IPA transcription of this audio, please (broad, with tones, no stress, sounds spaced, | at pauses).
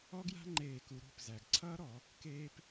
ɔ˦˥ ɡ j a̤˦˥ ŋ͡ǃ eː˧˩˧ k u˩˧ ɾ ṳ˩˧˩ p z æ˩ ɡ ǀʰ ʌː˦˥ ɾ ɔ˧˩˧ | k eː˦˥ p